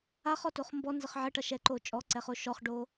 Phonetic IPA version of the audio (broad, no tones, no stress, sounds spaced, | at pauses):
a χ ɔ t o χ m b ɔ n z ə χ ʕ ə ʈ ʌ ʃ ɛ ǃ o t͡ʃʼ ɔ ǀ ɛ χ o ʃ ɔ χ ɖ o